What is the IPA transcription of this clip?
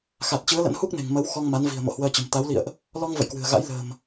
x a˨˩ t̚ t͡ɕ ɨ˨˦ ə̯ l ə̰˧˥ n h u˦˥ k̚ n e̤˨˩ ŋ m ə˨˦ w x ɔ˧ ŋ m a˨˦ n v i̤˨˩ ə̯ m o̰˧˨ h w əː˧ t͡ɕ ə̤˨˩ m t̪ a˨˦ w l ḭ˧˨ ə̯ ʔ | l ɔ˧ ŋ v ə̰˧˨ j k w ɨ̤˨˩ ə̯ ɣ a̰˧˥ j l ə̤ː˨˩ m

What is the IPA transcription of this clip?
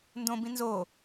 n d õ b ĩ n z o

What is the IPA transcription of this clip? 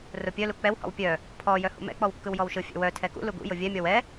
r ʊ pʲ œ l u k͡p ɛ w h ɔ̰ w pʲ œ | pʰ ɔ j œ h ṵ m ɛ̰ k͡p ɔ w kː ɯ w j ɔ w ʃ ɯ fʲ ɛ̰ w œ tʰ ɛ k ṵ l u ɡ ṵ j ʊ vʲ ɛ mʲ ɔ w ɛ

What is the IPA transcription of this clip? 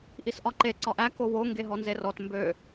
ʔ i s ʔ ɒ ǃ e ǀ ɒ ʔ æ k o w o ŋ ɡ e ɦ ɔ n z e r ɔ t m b ø

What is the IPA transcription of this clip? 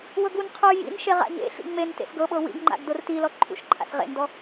w ɤ ɡ u n qʰ u j ḭ n ʃ e ʁ a̰ ɲ ḛ ɬ ḭ ŋ͡m e n t ḛ s ɡ ɤ ɓ ɤ w ḭ ɡ ŋ͡ǃ a̰ ɡ d o r t i l ɔ ǃʰ ṵ ʃ ǃʰ a̰ s ʁ ḛ n d ɔ

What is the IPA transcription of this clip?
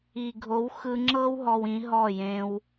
i˨ ɡʱ o˨˦ w x ɯ˧ ŋ͡ǁ ɤ˦ w ɦ ɔ˧ w ĩ˨˦ ɦ ɔ˦˨ j ẽ˦ w

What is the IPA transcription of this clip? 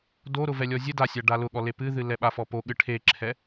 d o ɾ ʊ v ɛ lʲ ɔ zʲ ɘ d a sʲ a ɖ a l ʊ ɠ ɔ l e p ɨ ð ɨ l ɛ ɓ a f ɔ p o ɠ ɨ ʈʰ e ǁʰ ɛ

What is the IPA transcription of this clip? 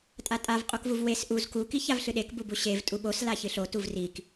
tʼ a tʼ a v qʼ o k v u v w e s ʔ u z k u k i ç a v ɬ ɨ ɗ e k b u b u ɕ e v tʼ u ɓ o s l a ç ɨ ɬ o t u v r i k

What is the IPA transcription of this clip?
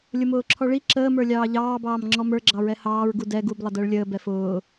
lʲ ʊ m ʊː ǁʰ ɔ ɭ i ǁ əː m ə˞ lʲ ɑː ʎ ɑː b ɑː m ŋ͡ǁ ɔ m ə˞ ɡ͡ǁ ɑ ɹ ɛ h ɑː ɹ ɡ u d ɛ ɡ u b lˠ ə d əː ɭ lʲ əː b ɛ f ʊː

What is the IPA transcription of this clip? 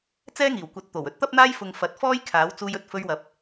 t͡s ɛː˥ ŋ iː˨˩ w kʷ ɐ˨˥ t̚ t̪ o˨˩ w ɵ˥ t̚ t̪ ɐ˥ p̚ n̪ aː˥ j f ʊ˨ ŋ f ɐ˨˥ t̚ f ɔː˥ j kʰ aː˨˥ w t͡s uː˧ j ɵ˧ t̚ f ɵ˧ ɥ w ɐ˨ p̚

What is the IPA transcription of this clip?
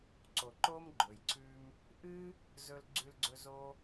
ǀ o˩ ǃ o˧ m ɡ͡ǃ ɵ˩ j ǀʰ ʉ˧ m | ʔ ɨ˥ | z ɵ˧ l ɡ͡ǀ ʉ˧ l ɡ͡ǀ ɵ˧ z o˧

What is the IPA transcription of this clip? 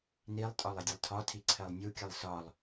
n i lˠ tʼ ɒ lˠ ɘ dʲ ə lˠ tʰ ɒ tʰ i ǀʰ ɜ lˠ nʲ u kʲ ə lˠ s ɒ lˠ

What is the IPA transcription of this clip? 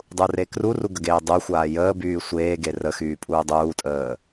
dˤ u r e k r u r u ɡ ə ɡ eː dˤ u xʷ aː j əː b yː sʷ eː ɡ e r ə x yː pʼ uː dˤ uː tʼ əː

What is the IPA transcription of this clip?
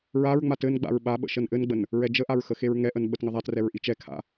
ɹ a ɹ ŋ͡m a t ɘ n ɡ͡b a̰ ɹ ɓ a ɓ ə̰ ʃ ə n ʔ ɘ n ɡ͡b ə n | ɹ ɛ d͡ʒ ə ʔ a ɹ x ə x e ɹ ŋ ɛ ʔ ə n ɓ ə t ŋ ə ðˤ a t r ɛ ɹ ʔ i t͡ʃ ɛ kʰ a̰

